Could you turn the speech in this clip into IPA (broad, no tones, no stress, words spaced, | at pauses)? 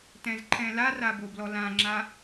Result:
tɛ̃zǃʰɛ̃lara boblɔlãŋ͡ǁa